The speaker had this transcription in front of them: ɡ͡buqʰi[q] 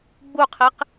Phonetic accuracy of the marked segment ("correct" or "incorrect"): correct